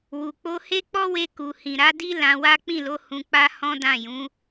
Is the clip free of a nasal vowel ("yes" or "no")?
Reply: no